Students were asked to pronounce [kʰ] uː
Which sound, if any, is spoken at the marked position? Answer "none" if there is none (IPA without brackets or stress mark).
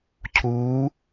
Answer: cʰ